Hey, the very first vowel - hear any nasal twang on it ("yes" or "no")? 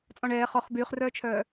yes